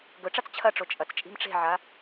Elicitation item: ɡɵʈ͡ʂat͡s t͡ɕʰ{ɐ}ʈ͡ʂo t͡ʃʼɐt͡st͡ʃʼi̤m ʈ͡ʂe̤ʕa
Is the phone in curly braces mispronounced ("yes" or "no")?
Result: no